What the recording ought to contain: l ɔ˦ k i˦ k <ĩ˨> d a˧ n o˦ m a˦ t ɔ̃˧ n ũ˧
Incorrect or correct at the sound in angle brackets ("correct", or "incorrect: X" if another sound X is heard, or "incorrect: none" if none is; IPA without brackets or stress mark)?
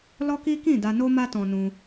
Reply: incorrect: ĩ˦˨